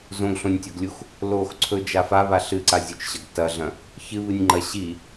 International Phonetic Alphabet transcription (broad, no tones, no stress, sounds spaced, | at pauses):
z õ ɡ ɬ õ nʲ tʲ o ɡ lʲ u x | l o x ǀʰ ɵ d͡ʒ a f a β a ɬ ɨ ǀ a zʲ u t͡ʃ ɕ ɐ ɡ t ɐ ɮ ɐ̃ | ç ɨ β ɨ nʲ ŋ͡ǃ ɐ ɕ i